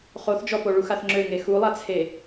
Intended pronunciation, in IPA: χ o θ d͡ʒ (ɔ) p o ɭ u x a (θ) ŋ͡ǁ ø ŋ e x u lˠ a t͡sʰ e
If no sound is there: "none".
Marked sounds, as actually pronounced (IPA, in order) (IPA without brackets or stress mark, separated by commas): ɔ, θ